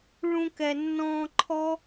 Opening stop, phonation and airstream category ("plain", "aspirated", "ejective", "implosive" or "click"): plain